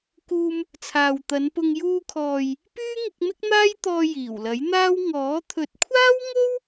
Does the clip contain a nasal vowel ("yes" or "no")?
no